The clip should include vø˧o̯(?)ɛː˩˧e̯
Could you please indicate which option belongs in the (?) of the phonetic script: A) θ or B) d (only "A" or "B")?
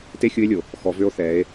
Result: A